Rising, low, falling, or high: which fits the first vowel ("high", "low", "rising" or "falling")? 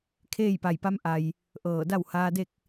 falling